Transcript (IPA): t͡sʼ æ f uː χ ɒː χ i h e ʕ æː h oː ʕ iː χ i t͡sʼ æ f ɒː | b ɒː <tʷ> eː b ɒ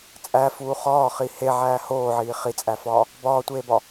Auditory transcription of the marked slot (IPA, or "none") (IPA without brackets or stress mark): tʷ